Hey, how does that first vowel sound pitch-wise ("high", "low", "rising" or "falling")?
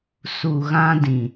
low